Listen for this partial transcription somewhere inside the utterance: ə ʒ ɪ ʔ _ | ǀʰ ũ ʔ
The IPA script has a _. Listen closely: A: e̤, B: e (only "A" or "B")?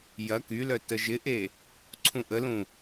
B